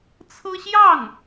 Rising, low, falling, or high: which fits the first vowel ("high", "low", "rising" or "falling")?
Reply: high